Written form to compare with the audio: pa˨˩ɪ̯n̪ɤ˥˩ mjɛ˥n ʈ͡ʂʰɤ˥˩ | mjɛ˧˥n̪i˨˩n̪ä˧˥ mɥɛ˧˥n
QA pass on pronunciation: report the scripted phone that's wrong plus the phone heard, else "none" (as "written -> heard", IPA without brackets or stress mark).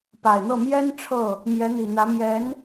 ɥ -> j